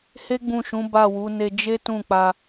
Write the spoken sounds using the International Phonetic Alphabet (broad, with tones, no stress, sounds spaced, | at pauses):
h e˦ ɡ͡b ũ˦˨ ʃ ũ˨˦ b a˦˨ w u˨˦ n e˧ d͡ʒ e˦ t ũ˦˨ k͡p a˧